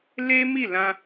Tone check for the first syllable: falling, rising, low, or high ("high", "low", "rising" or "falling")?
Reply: high